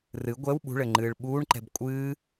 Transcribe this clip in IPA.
r ɨ ɡʷ ɛ w ɓ ṳ ɭ ɘ ŋ͡ǃ ɨː ɭ ɓ uː ɳ ǃ ɛ̤ b kʷʼ ɨː

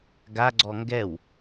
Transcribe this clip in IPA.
ɡ a ɡ͡ǀ ɔ ŋ ɡ ɛ w

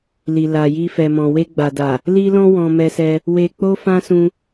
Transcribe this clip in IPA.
l i˨ l a˨ j i˧ f ɛ˨ m ɔ̃˨ w e˧ ɡ͡b a˨ d a˨ | l i˦ l ɔ̃˦ w ɔ̃˧ m ɛ˧ s ɛ˧ | w e˧ k͡p o˦ f ã˦ s ũ˧

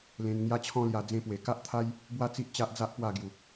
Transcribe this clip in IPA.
l ẽ˧ n ŋ j a˦ t͡ɕʰ ɔ̃˦ l j a˧ d͡z ẽ˧ p w e˨˩ k a˦ ʔ t̪ʰ a˦ j | b w a˥˧ t͡s i˦ ʔ t͡ɕ a˦ ʔ d͡z a˦ ʔ p w a˥˧ ɡ j u˨˩

